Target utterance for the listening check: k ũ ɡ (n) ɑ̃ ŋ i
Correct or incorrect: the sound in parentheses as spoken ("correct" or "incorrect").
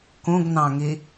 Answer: correct